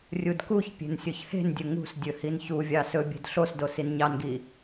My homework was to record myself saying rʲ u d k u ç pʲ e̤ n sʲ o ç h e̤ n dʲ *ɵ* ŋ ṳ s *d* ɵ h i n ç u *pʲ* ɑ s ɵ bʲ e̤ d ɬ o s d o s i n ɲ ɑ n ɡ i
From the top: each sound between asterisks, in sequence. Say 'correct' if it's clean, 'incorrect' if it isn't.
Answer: correct, incorrect: dʲ, incorrect: vʲ

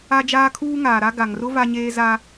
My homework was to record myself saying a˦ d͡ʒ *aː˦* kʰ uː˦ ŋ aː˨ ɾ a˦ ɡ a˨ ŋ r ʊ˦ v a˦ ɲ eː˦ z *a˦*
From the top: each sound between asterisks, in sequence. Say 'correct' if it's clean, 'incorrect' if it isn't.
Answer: correct, correct

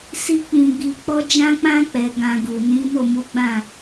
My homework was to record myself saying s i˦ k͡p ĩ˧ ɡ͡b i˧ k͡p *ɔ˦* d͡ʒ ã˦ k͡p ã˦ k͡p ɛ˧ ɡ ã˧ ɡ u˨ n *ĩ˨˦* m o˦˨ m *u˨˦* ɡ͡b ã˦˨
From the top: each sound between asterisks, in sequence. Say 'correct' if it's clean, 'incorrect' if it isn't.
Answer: correct, correct, correct

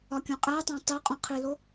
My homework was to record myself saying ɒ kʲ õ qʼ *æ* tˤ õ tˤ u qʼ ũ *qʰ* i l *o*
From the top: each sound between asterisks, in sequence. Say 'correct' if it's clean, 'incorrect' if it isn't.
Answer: correct, correct, correct

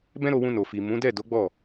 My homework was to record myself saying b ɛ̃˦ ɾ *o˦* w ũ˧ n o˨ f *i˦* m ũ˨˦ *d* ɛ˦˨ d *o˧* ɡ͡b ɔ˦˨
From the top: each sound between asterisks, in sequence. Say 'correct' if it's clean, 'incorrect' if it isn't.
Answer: incorrect: o˧, incorrect: i˨, correct, incorrect: o˨˦

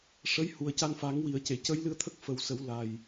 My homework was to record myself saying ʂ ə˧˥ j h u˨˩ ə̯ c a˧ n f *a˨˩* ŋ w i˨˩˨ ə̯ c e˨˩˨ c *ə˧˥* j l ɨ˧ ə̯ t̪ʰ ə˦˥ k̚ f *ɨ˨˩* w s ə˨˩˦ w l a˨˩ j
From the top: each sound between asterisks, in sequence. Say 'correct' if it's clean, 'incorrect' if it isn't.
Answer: incorrect: a˨˩˦, correct, incorrect: ə˨˩

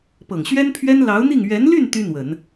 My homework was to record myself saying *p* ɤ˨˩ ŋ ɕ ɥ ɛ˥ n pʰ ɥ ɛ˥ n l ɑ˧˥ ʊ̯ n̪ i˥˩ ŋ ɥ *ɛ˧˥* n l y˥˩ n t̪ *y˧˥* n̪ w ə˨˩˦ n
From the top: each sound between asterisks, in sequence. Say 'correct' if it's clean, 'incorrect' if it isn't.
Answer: correct, correct, incorrect: y˥

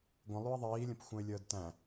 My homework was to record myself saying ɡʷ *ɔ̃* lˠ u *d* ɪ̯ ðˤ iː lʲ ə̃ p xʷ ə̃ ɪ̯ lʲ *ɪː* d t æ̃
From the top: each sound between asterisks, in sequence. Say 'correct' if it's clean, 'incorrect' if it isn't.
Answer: incorrect: ə̃, incorrect: none, incorrect: əː

